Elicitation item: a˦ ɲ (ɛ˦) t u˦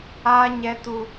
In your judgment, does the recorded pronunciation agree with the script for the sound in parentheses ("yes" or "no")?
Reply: yes